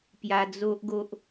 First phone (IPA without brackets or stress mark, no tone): p